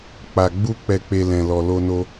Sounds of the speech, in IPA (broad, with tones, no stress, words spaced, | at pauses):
k͡pa˨ɡ͡bu˧ k͡pɛ˨k͡pe˨ lɛ̃˨lɔ˨lo˧no˧